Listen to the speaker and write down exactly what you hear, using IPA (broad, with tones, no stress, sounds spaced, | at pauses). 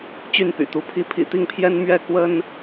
t͡ɕ y˥˨ n p y̰˨˩ t̪ u˨˦ pʰ i˦ pʰ ḭ˨˩ t̪ i˥˨ ŋ pʰ j ɛ˦ n m ɥ ɛ˥˨ k w ə˦ n